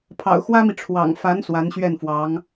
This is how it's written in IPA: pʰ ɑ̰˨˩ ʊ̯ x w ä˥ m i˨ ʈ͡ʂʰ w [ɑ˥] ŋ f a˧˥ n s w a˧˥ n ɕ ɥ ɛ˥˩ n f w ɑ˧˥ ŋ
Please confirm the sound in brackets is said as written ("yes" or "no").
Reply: no